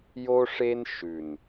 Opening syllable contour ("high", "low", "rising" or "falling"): high